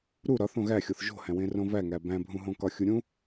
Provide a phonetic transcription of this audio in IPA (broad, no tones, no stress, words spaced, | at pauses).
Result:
ɾu ɾɒ θõɣæxʲoθ ʒo̤hæ̃wẽ rõvæŋæ bæ̃bʱũɦõkɒ xʲuɾʲũ